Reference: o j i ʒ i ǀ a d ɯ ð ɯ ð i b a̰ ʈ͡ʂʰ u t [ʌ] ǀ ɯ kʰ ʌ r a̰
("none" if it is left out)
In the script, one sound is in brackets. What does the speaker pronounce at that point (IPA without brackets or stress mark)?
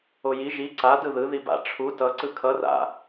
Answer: ʌ